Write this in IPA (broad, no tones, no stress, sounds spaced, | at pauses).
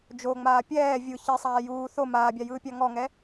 d͡ʒ o ŋ͡m aː pʲ ɛː vʲ ɯ ç i sˤ aː j uː θ o m aː bʲ a j ɯː pʲ a ŋ ɔ ŋ ɛ